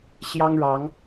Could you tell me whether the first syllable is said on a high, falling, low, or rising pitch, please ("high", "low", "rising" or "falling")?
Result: high